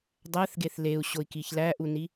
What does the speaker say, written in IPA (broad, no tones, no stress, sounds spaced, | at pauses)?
dˤ æ θ ɡ e θ l e u̯ ɕ o i̯ k i ç l æ ʔ u n i